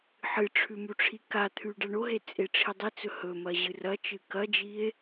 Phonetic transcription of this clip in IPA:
ħɨʈ͡ʂʰʉ muʈ͡ʂʰikat̪ʰʉ ɖaɳoɦe t͡sʼeʈ͡ʂʰidˤit͡sɵ hɵmɐ ʑɨrɐt͡ʃɨ kɐd͡ʒie̯

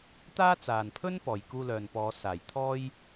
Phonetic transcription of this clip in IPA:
t̪aː˥t͡saː˨npʰɵ˥n pɔː˨jkuː˧lœː˨npɔː˨˧ saː˨˩jt̪ʰɔː˥j

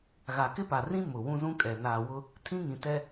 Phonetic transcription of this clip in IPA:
ɣa˨kɪ˦pa˨rĩ˦ mʊ˨wũ˦zũ˦kʼɛ˨ naː˨wʊ˦ | tʰĩ˦ŋĩ˨tɛ˦

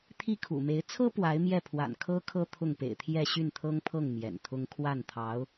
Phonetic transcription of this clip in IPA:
t̪ʰi˥˩kʰṵ˨˩me˧˥ɪ̯ t͡sʰɤ˥ pwa˧˥ɪ̯mjɛ˥˩pʰwa̰˨˩nkʰɤ˥ kʰɤ˥t̪ʰʊ˥˩ŋpḛ˨˩ɪ̯t̪ʰjɛ˥˧ ɕy˥˩nt̪ʰɤ˥ŋpʰɤ˥˩ŋ mjɛ̰˨˩nt̪ʰʊ˥ŋ kʰwa˥˩nt̪ʰɑ˧˥ʊ̯

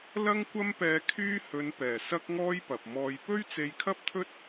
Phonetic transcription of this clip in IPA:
lɐ˥ŋkʷɐ˥mpɛː˧ kʰyː˥ hɵ˨˧npɛː˨˩ sɐ˥k̚ŋɔː˥j pɐ˨p̚mɔː˧j pɵ˥ɥt͡se˧jkʰɐ˥p̚t̪ʰɵ˥t̚

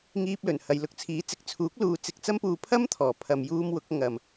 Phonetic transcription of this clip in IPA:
ŋiː˧p̚lɵ˨˩nhɐ˨j lʊ˧k̚t͡sʰiː˨˥ t͡sɪ˨k̚ t͡sʰuː˨˥k̚luː˨ t͡sɪ˧k̚t͡sɐ˥mpuː˧ pʰɐ˥mt̪ʰɔː˨˩ pʰɐ˨mjuː˧m wʊ˨˥k̚ ŋɐ˨m

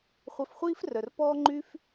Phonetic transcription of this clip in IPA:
χʷœ˧fχʷiː˦frœ˨r pɔː˦ŋ͡ǃyː˦f

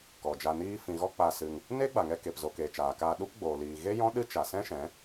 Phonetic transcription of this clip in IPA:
kɔ˨d͡ʒa˧niː˦ fĩ˨ɣɔ˧ k͡pa˧ sɨ˧ŋ | neː˦ɡ͡ba˨ŋɛ˧ ke˨pzo˨keː˨ t͡ʃaː˨kaː˧ ɗu˦pɡ͡boː˨liː˨ ɣe˦ jɔ̃˦ ɗɨ˦ t͡ʃa˨sɛ̃˦ʃɛ̃˨˦

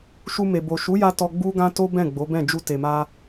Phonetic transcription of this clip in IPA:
ʃu˧me˨bo˨ ʃu˨˦ja˧ tɔ˧ɡ͡bu˦ɡã˦ to˦bɛ̃˦˨ ɡ͡bo˨˦bɛ̃˦˨ d͡ʒu˧te˨ma˧

